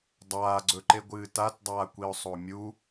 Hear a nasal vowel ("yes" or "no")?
no